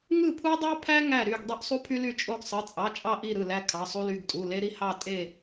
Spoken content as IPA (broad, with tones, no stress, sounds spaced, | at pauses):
ŋ ɯ˦˨ pʰ u˦ dˤ ɑ˦ pʰ æ˦ ŋ æ˦˨ ɾ y˦˨ ɡ dˤ ø˦ ʔ sˤ u˦ pʰ y˦ l y˦˨ t͡ʃʼ o˦ ɡ sˤ ɯ˩˧˩ t͡sʼ ɑ˩˧˩ t͡ʃʼ ɑ˦˨ ʔ i˦˨ ɾ ɯ˦˨ l æ˦ kʰ ɑ˩˧˩ sˤ u˦ l y˩˧˩ ɡ tʼ u˩˧˩ l e˦ ɾ i˦ h ɑ˦˨ tʼ e˦˨